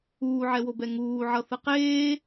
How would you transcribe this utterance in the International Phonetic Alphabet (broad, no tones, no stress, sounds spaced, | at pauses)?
uː ʕ ɛ w o b ɛ ŋ uː ʕ ʌ θ ɯ q eː